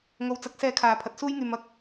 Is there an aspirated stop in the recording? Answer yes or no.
yes